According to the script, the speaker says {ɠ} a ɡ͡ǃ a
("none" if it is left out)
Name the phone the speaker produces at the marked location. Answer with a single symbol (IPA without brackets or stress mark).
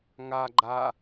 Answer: ŋ